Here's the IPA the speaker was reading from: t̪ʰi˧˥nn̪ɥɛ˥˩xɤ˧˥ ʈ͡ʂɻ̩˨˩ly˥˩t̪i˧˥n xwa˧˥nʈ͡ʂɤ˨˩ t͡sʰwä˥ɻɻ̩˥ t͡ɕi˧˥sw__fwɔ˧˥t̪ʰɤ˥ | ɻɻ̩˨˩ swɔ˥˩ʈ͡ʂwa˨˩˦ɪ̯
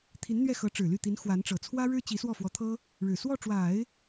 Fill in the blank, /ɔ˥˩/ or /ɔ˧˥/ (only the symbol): ɔ˥˩